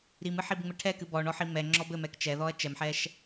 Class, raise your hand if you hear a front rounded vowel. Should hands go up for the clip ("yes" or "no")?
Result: no